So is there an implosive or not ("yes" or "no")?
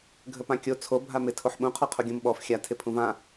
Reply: yes